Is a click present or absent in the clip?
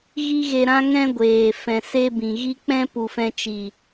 absent